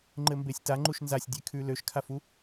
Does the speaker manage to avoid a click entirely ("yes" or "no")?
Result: no